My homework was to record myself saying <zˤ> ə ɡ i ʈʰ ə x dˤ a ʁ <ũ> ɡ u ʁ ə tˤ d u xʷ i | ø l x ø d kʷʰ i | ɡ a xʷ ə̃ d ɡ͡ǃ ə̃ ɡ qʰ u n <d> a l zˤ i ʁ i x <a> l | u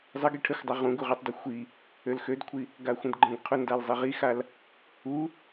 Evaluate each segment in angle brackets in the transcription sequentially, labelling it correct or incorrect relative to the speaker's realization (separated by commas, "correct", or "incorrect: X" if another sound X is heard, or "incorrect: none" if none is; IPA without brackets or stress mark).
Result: correct, correct, correct, correct